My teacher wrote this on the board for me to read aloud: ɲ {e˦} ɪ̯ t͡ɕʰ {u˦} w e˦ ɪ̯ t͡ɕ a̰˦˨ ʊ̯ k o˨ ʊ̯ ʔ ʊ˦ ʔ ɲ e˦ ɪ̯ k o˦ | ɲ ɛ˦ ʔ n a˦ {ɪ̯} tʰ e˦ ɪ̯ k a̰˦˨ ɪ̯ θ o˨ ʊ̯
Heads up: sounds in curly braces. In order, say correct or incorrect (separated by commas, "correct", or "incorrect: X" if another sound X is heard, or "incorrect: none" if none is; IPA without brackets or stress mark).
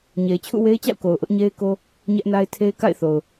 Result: incorrect: e˨, incorrect: ṵ˦˨, correct